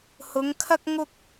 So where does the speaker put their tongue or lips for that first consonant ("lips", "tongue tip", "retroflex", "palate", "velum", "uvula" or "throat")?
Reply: throat